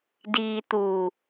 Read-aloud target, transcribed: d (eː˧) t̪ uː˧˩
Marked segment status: incorrect: iː˧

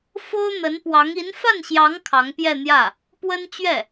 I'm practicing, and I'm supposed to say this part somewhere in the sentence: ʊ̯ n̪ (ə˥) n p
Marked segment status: incorrect: ə˧˥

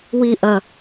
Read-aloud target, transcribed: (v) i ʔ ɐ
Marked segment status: incorrect: w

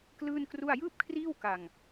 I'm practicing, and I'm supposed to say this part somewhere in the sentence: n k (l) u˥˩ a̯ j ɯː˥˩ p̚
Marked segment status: incorrect: r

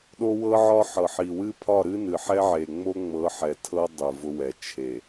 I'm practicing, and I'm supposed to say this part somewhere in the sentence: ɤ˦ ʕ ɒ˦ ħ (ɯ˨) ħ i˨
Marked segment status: incorrect: ɤ˨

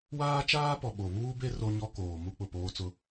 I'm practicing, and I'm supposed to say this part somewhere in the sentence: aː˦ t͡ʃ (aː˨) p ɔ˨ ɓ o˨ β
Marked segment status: incorrect: aː˦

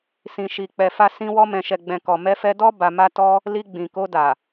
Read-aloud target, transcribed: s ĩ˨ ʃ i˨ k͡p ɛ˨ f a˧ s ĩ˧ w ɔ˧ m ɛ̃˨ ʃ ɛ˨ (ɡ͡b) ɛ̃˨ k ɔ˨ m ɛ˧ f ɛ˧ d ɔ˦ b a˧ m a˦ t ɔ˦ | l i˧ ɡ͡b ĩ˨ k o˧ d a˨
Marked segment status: correct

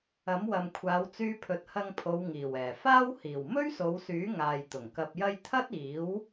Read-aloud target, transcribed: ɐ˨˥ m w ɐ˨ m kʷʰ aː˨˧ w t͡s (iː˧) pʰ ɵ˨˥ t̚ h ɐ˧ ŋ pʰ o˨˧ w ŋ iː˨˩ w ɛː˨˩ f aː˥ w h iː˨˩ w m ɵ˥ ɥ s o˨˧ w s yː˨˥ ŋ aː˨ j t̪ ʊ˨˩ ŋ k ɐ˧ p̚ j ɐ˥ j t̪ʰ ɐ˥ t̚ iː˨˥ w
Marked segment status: incorrect: yː˧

